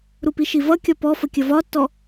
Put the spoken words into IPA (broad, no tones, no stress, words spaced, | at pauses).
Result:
ɾupiʃivʌ kʲɒpɔfə kʲəvɒtːɔ